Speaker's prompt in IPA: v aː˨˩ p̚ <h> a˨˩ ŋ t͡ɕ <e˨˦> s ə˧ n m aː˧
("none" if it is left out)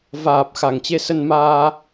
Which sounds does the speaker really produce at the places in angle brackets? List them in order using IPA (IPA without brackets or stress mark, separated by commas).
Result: x, e˧